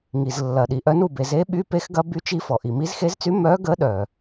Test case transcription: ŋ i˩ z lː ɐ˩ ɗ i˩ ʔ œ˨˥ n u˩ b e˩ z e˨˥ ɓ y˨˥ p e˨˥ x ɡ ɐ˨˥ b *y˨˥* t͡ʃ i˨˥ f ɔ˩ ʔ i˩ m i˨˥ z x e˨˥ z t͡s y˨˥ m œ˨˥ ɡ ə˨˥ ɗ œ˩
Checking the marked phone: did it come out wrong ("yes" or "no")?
no